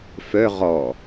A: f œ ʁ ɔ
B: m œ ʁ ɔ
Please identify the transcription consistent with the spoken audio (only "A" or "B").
A